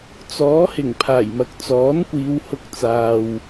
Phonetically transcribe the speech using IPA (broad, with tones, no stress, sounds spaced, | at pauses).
t͡s ɔː˨˥ h ɪ˨˩ ŋ pʰ aː˨˩ j m ɐ˨ k̚ t͡s ɔː˨˥ n kʷ iː˨˧ w h ʊ˧ k̚ t͡s aː˨ w